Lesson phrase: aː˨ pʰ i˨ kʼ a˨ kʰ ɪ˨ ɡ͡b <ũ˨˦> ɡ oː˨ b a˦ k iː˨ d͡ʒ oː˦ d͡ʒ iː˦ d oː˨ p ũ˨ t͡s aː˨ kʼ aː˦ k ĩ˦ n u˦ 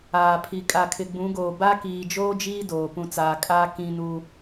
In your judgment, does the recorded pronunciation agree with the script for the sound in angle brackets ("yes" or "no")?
yes